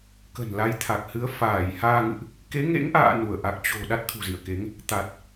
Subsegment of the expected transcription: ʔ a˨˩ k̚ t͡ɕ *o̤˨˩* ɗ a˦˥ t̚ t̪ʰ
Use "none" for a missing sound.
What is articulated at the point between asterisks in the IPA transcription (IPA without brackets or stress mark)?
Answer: o̤˨˩